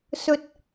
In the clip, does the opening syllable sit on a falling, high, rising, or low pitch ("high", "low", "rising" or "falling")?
rising